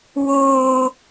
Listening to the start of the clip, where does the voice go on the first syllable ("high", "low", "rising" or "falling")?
high